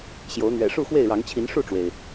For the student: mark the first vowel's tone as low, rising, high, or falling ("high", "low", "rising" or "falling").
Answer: rising